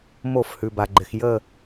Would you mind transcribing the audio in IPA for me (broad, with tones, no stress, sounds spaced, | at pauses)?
m o˧˩˧ f h ʉ˩ b a˩ ɡ͡ǃ ɪ˩ x j ə˦˨